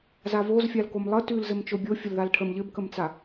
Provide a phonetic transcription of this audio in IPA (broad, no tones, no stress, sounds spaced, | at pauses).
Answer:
z a v o z fʲ a l k o m lˠ ə t ʉ l z ɘ m t͡ʃ o bʲ o fʲ ə l ð a l ʈʰ ə m ʎ ɘ b k ə m t͡s a